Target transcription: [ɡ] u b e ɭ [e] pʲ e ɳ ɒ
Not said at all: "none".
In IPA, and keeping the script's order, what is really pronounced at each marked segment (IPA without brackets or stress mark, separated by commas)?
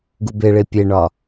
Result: ɡ, e